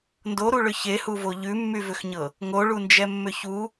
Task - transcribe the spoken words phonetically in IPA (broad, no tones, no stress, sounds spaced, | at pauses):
n d o ɾ u ɭ ʏ ç e h u v o ʎ ʉ mː y v ʏ x ɲ ɤ | ŋ o ɭ u n d͡ʒ ɛ mː ʏ ç u